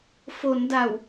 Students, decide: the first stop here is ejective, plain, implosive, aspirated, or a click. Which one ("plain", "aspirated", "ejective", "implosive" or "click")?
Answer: plain